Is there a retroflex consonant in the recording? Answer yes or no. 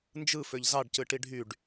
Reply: yes